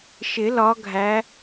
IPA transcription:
ʃ ɪ˨˩˦ l ɒ˨˦ ɡʱ æ˨˦

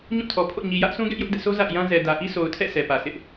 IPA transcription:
ɲ ũ˦˨ tʰ ɔ˨ pʰ o̰˦˨ ɲ i˨ j ä˦ ʔ sʰ ũ˦ ɡ ɛ˦ ʔ j ʊ˦ ʔ d ɛ̰˦˨ sʰ o˦ z a̰˦˨ ɪ̯ j ã˦ z ɛ˨ d ä˨ ʔ i˦ sʰ o˨ ʊ̯ tʰ ɛ̰˦˨ sʰ ɛ˨ p ä˨ sʰ ɪ˦ ʔ

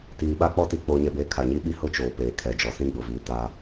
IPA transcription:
t iː˨ ɓ a˦ k͡p ɔ˦ t i˨ k͡p oː˨ ɲ ɛ˨ b eː˨ kʰ a˨ ɲ i˦ ɓ i˦ h ʊ˦ t͡ʃ oː˨ p eː˨ kʰ ɛ˨ d͡ʒ ɔ˨ s ĩ˦ ɡ͡b ʊ˨ v iː˨ t a˦

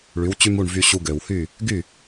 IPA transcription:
ɭ y˩˥ w t͡ɕ y˥ m u˥˩ ɳ v y˧ ɕ u˧ ɡ ø˩ w h y˥˩ | ɡ y˥˩

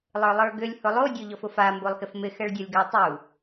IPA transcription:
lˠ ə˞ lˠ ə˞ ɡ ʏ lʲ h ʊ lˠ o dʲ o ʎ ɔ f ʊ f a m b o lˠ x ɪ f m ɪ x ɛ ɭ dʲ ɔ lʲ ɡ a tˤ u

